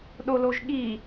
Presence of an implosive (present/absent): present